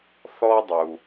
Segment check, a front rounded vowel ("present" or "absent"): absent